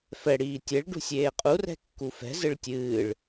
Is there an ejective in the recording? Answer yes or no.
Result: yes